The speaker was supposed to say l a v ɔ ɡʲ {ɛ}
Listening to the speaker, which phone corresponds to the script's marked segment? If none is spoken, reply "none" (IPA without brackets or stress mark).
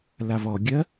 ɜ